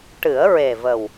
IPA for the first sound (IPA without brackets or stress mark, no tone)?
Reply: ʈ